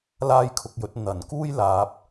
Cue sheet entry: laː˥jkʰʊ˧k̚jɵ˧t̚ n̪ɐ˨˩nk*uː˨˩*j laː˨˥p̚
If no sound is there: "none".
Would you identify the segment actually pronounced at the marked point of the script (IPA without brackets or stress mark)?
uː˥